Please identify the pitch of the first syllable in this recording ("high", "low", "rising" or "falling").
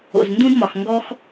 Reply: low